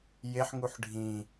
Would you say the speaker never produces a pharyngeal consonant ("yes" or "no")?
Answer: no